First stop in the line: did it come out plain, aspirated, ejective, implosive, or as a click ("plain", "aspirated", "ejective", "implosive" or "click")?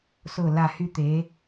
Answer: plain